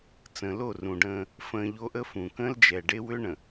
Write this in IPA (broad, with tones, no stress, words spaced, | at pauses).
t͡sə̃ː˨lo˦˨rũ˨ɖə̃ː˦ | fə̃ː˨ ʎo˦ʔə˦fũ˨ kə̃ː˦ld͡ʒɛ˨ɖe˦ wʏ˦ɳə̃˨